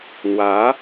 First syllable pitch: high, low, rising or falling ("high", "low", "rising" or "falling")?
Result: rising